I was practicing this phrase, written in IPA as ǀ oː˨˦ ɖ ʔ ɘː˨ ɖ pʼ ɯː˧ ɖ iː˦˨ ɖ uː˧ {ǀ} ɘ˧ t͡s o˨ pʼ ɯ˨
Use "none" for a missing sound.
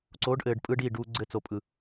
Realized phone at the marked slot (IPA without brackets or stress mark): ɡ͡ǀ